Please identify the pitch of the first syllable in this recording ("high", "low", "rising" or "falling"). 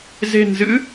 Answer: low